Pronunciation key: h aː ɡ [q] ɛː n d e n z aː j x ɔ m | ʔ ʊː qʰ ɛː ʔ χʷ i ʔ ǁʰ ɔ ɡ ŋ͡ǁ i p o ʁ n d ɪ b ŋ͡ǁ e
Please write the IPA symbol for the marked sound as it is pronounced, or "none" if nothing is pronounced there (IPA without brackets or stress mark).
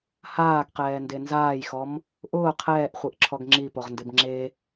q